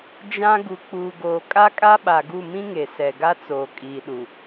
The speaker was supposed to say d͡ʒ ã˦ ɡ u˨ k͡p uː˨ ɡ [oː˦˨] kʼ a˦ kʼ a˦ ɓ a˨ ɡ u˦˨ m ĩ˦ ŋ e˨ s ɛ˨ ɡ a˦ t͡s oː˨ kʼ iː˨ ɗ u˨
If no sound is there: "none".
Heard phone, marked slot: oː˨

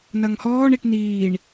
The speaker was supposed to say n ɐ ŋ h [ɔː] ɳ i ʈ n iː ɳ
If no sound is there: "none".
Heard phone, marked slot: ɔː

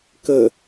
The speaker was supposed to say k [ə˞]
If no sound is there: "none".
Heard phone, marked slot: ə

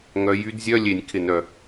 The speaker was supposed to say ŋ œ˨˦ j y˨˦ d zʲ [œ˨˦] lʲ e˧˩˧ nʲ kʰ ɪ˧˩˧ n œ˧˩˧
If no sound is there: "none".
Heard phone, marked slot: œ˧˥˧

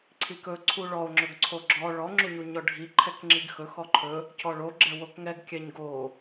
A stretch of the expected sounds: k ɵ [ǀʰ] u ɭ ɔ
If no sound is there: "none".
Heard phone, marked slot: ǀʰ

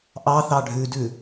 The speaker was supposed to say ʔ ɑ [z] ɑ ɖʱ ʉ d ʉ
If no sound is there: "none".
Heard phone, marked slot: θ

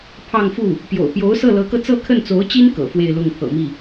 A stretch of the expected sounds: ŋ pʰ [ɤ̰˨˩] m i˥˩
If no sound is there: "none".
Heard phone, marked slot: ɤ̰˨˩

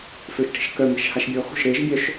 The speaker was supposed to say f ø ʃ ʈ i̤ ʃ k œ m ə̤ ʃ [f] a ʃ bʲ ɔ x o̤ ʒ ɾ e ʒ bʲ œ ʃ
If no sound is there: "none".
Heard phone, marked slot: h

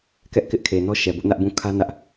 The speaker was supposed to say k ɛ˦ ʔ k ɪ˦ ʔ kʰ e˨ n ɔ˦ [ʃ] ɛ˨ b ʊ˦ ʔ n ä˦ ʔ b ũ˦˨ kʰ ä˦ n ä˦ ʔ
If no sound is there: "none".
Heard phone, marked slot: ʃ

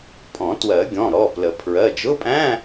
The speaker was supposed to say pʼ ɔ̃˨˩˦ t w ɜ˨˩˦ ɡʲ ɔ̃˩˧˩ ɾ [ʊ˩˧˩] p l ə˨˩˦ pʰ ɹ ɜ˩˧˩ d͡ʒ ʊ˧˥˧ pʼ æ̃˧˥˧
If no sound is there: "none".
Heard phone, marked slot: ɔ˩˧˩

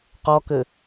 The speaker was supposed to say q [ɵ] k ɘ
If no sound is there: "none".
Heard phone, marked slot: ɔ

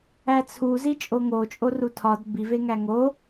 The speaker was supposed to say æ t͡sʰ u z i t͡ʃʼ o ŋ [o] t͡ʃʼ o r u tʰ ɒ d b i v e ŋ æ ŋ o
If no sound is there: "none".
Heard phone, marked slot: o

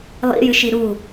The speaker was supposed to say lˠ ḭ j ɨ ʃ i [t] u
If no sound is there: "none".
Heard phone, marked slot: ɾ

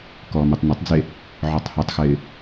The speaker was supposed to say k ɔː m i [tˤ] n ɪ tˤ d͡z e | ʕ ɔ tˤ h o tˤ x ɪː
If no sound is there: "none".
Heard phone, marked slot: tˤ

